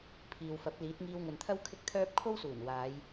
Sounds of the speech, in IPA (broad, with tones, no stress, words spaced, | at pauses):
pʰiː˨wfɐ˨˥p̚ liː˨˥t̚ŋiː˧wŋɵ˨˧nt̪ʰɐ˥w kʰɪ˥k̚t̪ʰœː˥p̚ kʰo˥wsuː˨˩n waː˨˧j